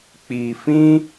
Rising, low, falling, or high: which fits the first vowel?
low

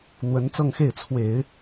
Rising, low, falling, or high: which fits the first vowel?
rising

